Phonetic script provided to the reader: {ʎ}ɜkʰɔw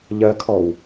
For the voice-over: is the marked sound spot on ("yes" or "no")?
yes